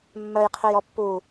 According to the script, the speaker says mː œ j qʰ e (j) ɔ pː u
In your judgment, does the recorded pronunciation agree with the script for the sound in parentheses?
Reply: yes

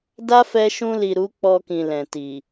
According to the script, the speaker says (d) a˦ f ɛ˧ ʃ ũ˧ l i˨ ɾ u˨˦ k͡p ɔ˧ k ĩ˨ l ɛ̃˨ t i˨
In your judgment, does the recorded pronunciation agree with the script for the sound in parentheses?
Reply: yes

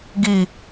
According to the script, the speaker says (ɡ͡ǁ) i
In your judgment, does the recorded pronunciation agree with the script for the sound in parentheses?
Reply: no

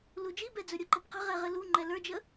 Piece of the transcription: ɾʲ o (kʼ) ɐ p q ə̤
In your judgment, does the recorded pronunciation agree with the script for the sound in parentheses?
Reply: no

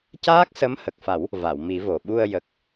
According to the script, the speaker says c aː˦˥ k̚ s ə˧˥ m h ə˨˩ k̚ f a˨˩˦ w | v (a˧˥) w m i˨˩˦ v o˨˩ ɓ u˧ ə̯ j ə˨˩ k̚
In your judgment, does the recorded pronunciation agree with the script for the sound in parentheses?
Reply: no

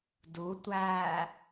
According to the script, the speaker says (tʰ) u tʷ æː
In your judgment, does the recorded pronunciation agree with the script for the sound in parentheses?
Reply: no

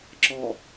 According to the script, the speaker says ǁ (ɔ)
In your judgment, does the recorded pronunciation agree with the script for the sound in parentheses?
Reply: yes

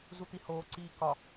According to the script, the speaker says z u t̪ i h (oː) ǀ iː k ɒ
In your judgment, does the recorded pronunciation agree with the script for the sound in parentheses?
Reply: yes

